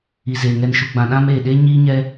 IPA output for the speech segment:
i˨ z eː˨ ŋ ɛ˨ n ʃ u˨ ɡ͡b ã˨ ɗ ã˦ m eː˨ ɗ e˦ ɲ iː˦ ɲ ɛ˦

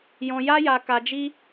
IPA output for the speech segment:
j ɔ̃˧ j a˦ j a˧ k a˧ d͡ʒ i˦

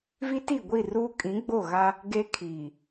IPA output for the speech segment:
v i˦ t i˦˨ ɡʷ i˦˨ r uː˦ kʼ ĩ˨˦ ɡ͡b o˦˨ ɣ a˦ | ɡ e˦ kʰ iː˨

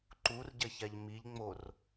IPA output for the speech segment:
ǃ u r ɟ ɐ ç a ʎ m i ʎ ŋ͡m o r

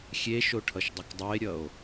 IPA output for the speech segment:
xʲ e ʃ o ʈʰ ʌ ʃ dˤ ɐ k dˤ o e̯ ɾʲ ʌ o̯

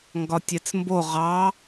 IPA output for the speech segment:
ŋ ɡ ɒ tʲ ɛ t͡s m b o ʁ ɑ

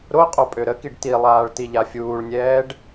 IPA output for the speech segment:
ɾ o qʼ o pʼ ø ɾ ə k i ɖ t i lˠ aː ɭ t i ʎ a fʲ uː ɭ nʲ ɛː ɖ

